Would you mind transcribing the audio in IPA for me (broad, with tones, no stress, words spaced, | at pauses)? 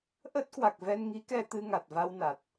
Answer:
ʔə˦˥t̚ kwa˨˩k̚vɛ˧nŋi˨˦kɛ˧ t̪ɨ˧ŋa˨˩t̚va˧wna˨˩t̚